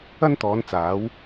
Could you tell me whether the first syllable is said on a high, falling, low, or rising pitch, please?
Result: high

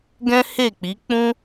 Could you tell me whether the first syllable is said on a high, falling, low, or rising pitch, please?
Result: high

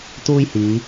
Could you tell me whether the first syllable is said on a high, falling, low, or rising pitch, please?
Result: high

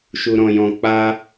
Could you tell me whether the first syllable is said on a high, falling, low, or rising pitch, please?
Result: low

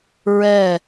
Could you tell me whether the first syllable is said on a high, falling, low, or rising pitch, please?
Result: falling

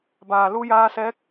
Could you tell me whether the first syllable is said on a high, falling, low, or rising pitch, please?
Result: low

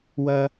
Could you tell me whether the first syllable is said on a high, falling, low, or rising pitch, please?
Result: high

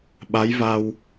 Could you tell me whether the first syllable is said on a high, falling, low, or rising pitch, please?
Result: rising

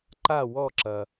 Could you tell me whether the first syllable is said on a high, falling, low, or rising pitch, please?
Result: falling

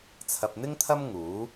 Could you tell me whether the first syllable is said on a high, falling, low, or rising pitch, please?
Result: low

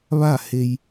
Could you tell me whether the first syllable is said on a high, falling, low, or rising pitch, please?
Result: falling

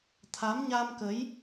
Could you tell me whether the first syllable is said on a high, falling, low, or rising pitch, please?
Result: rising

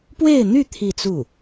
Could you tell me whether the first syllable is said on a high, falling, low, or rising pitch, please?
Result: falling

